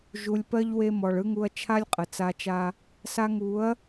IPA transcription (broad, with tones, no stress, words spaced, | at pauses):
ʒu˨lʲpɜ˧ʎ we˧mɔ˨ɭɯ˦ŋu˧ɐ̯ t͡ʃʰa˦lʲqʼə˨t͡sa˧t͡ʃa˦ | sa˧ŋu˨˦ɐ̯